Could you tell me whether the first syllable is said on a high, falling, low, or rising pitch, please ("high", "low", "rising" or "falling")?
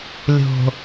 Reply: low